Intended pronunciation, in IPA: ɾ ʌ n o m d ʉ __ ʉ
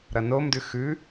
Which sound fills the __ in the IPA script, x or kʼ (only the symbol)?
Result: x